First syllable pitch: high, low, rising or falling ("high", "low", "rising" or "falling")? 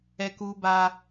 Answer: high